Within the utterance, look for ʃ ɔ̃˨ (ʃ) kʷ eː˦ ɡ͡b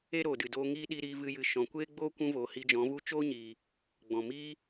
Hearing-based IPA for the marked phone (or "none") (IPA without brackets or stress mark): none